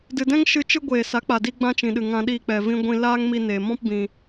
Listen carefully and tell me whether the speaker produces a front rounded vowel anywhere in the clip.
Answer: no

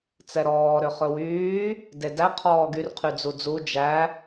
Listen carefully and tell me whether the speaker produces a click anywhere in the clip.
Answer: no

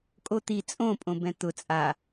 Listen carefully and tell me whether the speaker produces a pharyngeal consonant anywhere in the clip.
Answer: no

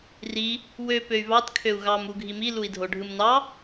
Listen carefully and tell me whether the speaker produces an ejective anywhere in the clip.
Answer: no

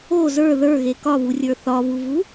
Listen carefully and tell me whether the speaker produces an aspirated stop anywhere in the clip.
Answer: no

